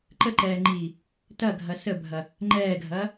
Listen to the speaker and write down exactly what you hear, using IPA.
ǃ ə ǃ ɛː ŋ͡ǃ iː | t ɐ ɡʱ ɐ s ə bʱ ɐ | ŋ͡ǃ ɛː ɡʱ ɐː

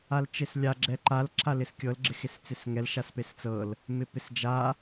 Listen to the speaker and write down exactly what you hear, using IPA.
a l t͡ʃ e s lʲ a ɡ͡ǁ ɛ ǃ a l ǁʰ a l ɪ s kʲ ɤ l ɡ͡ǁ ɪ x e s t͡s ɪ s ŋ ɛ l ʃ a s p e s t͡s ɤ l | m ɪ p ɪ s d͡ʒ a

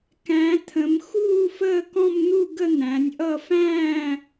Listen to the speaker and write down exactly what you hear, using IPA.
k æ̃˨˦ t̪ʰ ə̃˨˦ m x uː˥˧ f əː˥˧ k ɔ̃˥˧ m n̪ u˥˧ ɡ ə˥˧ n̪ æ̃˨˦ nʲ ʔ ʌ˥˧ f æ̃ː˥˧

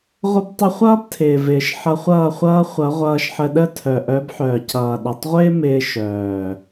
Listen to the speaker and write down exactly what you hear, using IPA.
ʁʷ ə˧ b tˤ ə˧ χʷ ʌː˦ b tʰ ɪː˨ v ɪː˨ ʃ ħ ʌ˧ χʷ ʌː˦˨ χʷ ʌː˦ χʷ ʌ˨˦ ʁʷ ʌː˧ ʃ ħ ə˧ ɗ ə˦˨ tʰ œ˨ ʔ œ˨˦ b ħ œː˨ c ʌː˨ ɗ ʌ˨ tˤ ʁʷ ɪː˦ m ɪː˦ ʃ œː˨

